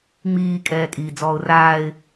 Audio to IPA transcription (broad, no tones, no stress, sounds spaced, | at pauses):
ŋ͡m iː kʼ ɛː kʼ iː d͡z ɔː ʊ̯ r aː ɪ̯